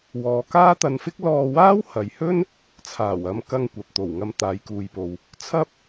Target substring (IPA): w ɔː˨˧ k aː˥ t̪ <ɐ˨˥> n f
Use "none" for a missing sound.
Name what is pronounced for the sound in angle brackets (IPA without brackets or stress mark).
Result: ɐ˧